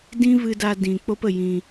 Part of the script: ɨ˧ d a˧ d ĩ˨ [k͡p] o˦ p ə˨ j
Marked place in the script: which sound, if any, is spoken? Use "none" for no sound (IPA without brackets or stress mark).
k͡p